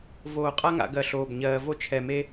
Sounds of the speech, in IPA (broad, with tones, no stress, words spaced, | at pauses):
voː˧˩qʼa˥ŋa̰˩˧ ɡɜ˧˩ɬoː˧˩b ɲɜː˧ vo˥t͡ʃʰɛ˧˩me˥